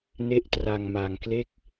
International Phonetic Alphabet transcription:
ne˥˩ʔ tra˧ŋma˧ŋkle˥˩k̚

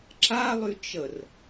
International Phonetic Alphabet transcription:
ǁalˠy t͡ʃər

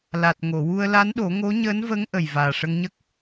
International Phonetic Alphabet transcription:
la˨˩t̚ ŋo˨˩˨wu˧ə̯la˧˥nɗo˨˩˦ ŋo˧˥ɲəː˧˥nvə˧˥ŋ ʔə˨˩jvaː˨˩ʂə˧ŋɲə˦˥k̚

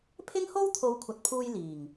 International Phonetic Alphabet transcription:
pʰɪ˥ŋho˥wt̪ʰo˨˧w kʷʰɐ˨t̚pʰuː˧j liː˨˩ŋ

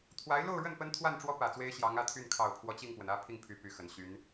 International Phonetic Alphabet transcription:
t̪ʰwa˧˥ɪ̯lo˥˧ʊ̯ɻə˥˩n pə˥nt̪ʰwa˥˩nʈ͡ʂwɔ˥ pä˨˩t͡swe˥ɪ̯ ɕjɑ˧˥ŋä˧˥ t̪ʰy˥˩n kʰɑ˨˩ʊ̯pʰwɔ˦ t͡ɕi˥˩ŋpwə˩nä˥ pʰi˥˩ŋpʰy˨˩ py˧˥xə˨˩nɕy˧˥n

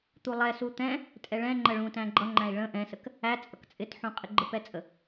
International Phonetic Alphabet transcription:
t̪ulˠɛ sut̪ɛ̃ | tʼɛɭɛ̃ ŋ͡ǃəɭũ tæ̃ɡ͡ǃʌŋ͡ǃæ̃i̯ ɭə̃ ʔɛ̃sək | æt͡sʼʌk t͡sʼɪtħũ qʼɪɡ͡ǃəpɛt͡sʼə

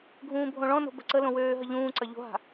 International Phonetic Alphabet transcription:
ɡʱũːbʱõɭɔ̃no̤ bə̤ǀəlõ wøːɦə ʎũːǀɐ ʎo̤ɦa̤

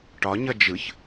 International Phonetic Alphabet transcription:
ʈɒɲʌ d͡ʒɯç

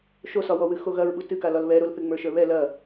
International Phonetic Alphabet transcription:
ʃosɒwɔwɨ xoɣɐɹɓu tɨkalɒl βɛɾolθɨ ŋ͡mə˞ʃə˞βɛ lɐ

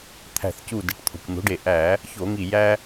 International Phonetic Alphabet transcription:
t̪ʰæ̤˧˩θcu˧˩de˩˥ʈ t̪ʰo̤˩kʷn̪o̤˩˥ɖe˧˩ ʔæ˧˩˧ | ço˧˩˧ŋi˧˩jæ˦

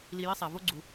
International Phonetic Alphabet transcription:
li˧ji˦sˤɛ˨vo˦ ɡ͡ǀu˨

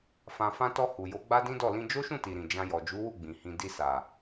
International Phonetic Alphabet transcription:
fã˨fã˧tɔ˧ hu˨jo˨˦ ɡ͡ba˦dĩ˦dɔ˦˨ lĩ˧d͡ʒo˦ʃũ˦˨ti˨ ɾĩ˨d͡ʒã˧jɔ˨ d͡ʒu˨˦wu˦˨ ɡ͡bĩ˨hĩ˧ di˧sa˨

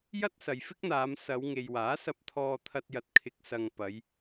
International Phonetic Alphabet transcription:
jɐ˥t̚sɐ˨jfɪ˥k̚n̪aː˨˧m sɐ˨˧wŋe˨jwaː˨˥sɐ˧p̚ t̪ʰɔː˧t̪ʰɐ˧t̚jɐ˨˥t̚ kʰɪ˨˥k̚sɐ˨ŋ pɐ˨˧j

